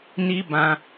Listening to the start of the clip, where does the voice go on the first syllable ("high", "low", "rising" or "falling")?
high